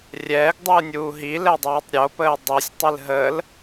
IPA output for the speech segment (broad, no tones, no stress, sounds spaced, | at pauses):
rʲ ɛː ɡ dˤ ɨː nʲ uː ɦ i l ɛ dˤ oː tˤ ɾʲ o p əː dˤ i sʲ tˤ ɨ l ɦ əː l